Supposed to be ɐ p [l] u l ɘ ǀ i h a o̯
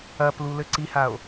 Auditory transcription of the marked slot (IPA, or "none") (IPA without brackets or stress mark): l